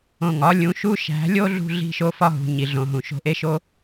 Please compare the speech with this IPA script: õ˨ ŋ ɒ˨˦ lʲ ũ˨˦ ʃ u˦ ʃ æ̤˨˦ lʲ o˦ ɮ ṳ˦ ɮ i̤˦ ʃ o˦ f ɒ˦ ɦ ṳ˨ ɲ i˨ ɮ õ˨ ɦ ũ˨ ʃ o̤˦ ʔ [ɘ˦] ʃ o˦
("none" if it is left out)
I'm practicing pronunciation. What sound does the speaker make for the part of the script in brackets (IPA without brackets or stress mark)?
e˦